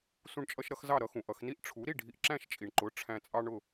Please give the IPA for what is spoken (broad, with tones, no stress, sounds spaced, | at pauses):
s ũ˧ ɳ t͡ʃʼ ʌ˧ ʃ ɾ ʌ˧ x z ɑ˥˩ ɾ ʌ˥ x ũ˩ ʔ ʌ˧ x n i˥ ʔ ʈ͡ʂʰ u˩˥ ɾ i˥˩ ɖʱ i˧ ʔ ǁ æ̃˥˩ ʃ t͡ʃʼ i˩ ɳ ǃ ʊ˩˥ ʈ͡ʂʰ æ̃˧ t͡sʼ ɑ˥ ɳ ʊ˥˩